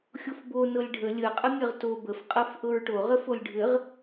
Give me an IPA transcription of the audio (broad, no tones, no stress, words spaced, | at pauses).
xʲofbo nɤlʲɖʱə lʲəqʼə mʲɐʁto bəfqʼɤf ʔɤɹʈoʁə folʲɖʱɘʁ